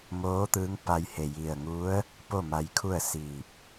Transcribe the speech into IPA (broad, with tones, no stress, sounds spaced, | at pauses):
m oː˧˥ t̪ ɯː˧˥ ŋ p a˧ j h e˧˩ j i˧˩ ə̯ ŋ u˧˥ ə̯ | p o˥˨ m a˧ j kʰ u˥˨ ə̯ s iː˧˩ p̚